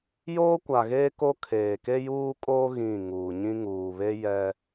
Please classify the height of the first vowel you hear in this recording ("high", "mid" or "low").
mid